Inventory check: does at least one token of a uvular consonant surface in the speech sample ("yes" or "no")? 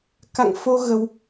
no